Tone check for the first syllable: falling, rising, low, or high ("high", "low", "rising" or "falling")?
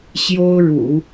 high